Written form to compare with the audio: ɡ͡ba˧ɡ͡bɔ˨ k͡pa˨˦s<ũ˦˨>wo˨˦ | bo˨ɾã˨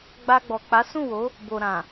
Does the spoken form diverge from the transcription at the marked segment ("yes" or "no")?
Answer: no